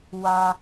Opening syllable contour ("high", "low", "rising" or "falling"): low